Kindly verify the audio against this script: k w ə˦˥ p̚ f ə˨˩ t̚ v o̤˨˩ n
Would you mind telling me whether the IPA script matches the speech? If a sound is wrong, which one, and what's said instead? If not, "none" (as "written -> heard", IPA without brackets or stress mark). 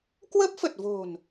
none